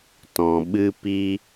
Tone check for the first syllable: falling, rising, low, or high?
low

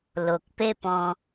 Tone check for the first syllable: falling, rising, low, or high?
low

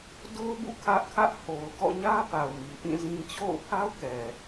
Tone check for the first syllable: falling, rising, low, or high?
high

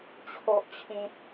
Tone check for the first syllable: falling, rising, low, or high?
low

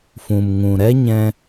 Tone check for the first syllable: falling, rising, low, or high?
low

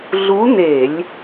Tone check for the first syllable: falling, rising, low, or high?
rising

